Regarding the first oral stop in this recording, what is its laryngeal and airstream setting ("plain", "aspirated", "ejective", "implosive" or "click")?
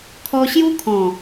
aspirated